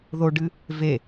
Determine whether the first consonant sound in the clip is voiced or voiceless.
voiced